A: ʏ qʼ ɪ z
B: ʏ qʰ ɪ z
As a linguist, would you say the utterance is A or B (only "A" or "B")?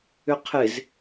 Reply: B